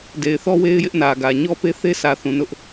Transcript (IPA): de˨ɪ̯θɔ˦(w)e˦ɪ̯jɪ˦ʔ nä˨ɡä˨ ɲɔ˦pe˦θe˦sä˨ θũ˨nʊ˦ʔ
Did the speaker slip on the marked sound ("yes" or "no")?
no